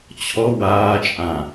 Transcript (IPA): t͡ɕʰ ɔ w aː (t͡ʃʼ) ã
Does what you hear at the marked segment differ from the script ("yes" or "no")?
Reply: no